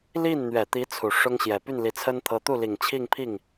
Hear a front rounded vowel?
yes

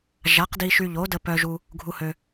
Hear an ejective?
no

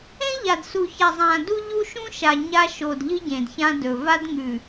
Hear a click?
no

